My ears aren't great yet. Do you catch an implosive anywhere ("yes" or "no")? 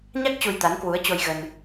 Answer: no